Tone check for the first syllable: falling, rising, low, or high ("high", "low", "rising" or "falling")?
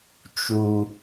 low